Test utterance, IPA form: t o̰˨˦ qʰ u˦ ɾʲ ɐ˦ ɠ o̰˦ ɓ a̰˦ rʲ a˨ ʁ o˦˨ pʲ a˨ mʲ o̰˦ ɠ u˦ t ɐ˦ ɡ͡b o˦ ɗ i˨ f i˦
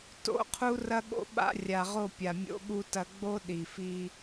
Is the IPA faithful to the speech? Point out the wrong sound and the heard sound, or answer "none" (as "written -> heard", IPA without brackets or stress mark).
ɾʲ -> r